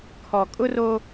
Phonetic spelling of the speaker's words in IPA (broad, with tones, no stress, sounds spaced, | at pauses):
kʰ ɔ˨ kʼ ʊ˦ r o˦